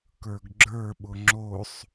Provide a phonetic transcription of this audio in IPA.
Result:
k ə˞ ɡ ɡ͡ǁ ə˞ ɓ ʊ ŋ͡ǁ o sˤ

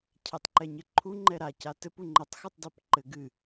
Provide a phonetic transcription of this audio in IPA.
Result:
cʰ ɛ tˤ ǃ ɛ ɲ ɘ ǃʰ u ŋ͡ǃ ɛ ɾ a c a t ɘ p u ŋ͡ǃ ɘ tˤ x ɨ tˤ d a p ǃ ɘ ɡ ɨ

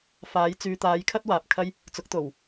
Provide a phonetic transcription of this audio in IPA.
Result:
f aː˨˧ j t͡s yː˨ t̪ aː˨˧ j kʰ ɐ˥ t̚ w aː˨ p̚ kʰ ɐ˥ j | t͡s ʊ˨˥ k̚ t̪ o˨˩ w

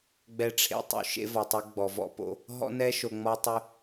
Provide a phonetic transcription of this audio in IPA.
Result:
ɡ͡b ɛ˨ ʈ͡ʂʰ ḛ˨ tˤ ṵ˨ ʃ ḛ˦ v ɔ˨ tˤ ɛ˦ ɡ͡b ɔ˨ v ɔ̰˦ p o̰˦ | ɦ ɔ̰˦ n ɛ˦ ʃ o˨ ŋ͡m ɔ˦ tˤ y˦

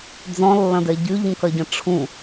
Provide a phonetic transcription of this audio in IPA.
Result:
d͡z ɔ̃ lː ɐ̃ d ɛ ɟ y ʎ ũ k ɐ ɟ ɐ̃ ʈ͡ʂʰ ũ

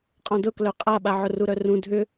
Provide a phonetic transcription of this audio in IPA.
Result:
qʼ ɔ̃ d ʊ k l œ qʼ a ɓ a ʕ ʊ r u ɾ œ r ũ dʱ ʏ

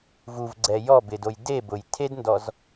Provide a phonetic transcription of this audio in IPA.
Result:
v u v ɡ͡ǀ ɛ j ɔ b ɪ d o j d e b ʊ j tʰ e d n d ɔ z

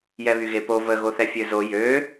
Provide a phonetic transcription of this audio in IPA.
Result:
j ɛ β y ɣ e p o v ə ɣ o θ ɛ fʲ ø z o j ø

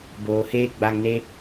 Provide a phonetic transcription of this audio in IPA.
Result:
b oː˨ h eː˦ ɡ͡b a˧ ŋ n e˦

